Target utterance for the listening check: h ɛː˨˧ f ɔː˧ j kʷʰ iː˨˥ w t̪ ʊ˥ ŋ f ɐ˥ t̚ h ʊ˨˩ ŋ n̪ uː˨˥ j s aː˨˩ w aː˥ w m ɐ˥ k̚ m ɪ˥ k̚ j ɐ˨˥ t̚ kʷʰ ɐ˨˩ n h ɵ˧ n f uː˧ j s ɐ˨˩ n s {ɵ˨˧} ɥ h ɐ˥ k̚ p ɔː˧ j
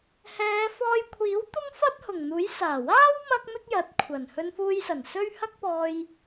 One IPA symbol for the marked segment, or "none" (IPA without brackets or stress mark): ɵ˥